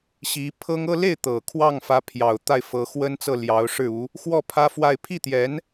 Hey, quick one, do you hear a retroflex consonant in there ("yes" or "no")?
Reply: yes